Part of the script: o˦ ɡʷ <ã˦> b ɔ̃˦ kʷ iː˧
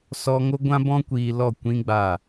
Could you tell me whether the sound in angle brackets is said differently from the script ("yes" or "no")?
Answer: no